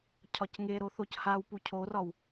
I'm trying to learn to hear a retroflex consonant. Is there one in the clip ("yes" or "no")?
no